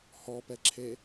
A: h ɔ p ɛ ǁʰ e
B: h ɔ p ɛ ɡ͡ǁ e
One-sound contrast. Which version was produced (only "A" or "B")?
A